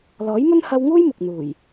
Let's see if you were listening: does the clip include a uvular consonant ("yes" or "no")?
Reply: no